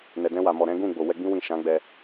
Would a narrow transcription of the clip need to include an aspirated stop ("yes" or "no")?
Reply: no